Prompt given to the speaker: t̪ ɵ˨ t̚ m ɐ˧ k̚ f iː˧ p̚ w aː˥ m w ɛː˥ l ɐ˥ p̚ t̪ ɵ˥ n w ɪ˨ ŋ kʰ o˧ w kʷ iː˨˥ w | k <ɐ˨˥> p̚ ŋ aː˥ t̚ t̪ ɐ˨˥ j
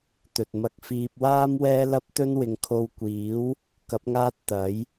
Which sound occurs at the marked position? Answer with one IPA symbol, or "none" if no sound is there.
ɐ˨˥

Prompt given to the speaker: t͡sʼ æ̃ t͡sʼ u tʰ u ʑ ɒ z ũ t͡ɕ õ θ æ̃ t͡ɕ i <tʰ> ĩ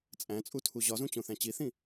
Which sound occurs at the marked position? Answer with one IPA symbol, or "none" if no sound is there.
θ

